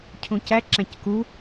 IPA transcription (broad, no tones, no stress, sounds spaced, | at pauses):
cʰ ũ c æ ǁ æ̃ c k u